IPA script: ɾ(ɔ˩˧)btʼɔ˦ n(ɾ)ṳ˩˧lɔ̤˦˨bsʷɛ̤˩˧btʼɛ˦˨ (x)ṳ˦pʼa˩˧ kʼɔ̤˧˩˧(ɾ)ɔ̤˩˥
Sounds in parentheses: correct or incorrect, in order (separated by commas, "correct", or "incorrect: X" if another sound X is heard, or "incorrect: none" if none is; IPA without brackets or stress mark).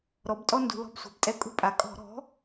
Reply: correct, incorrect: d, incorrect: kʼ, correct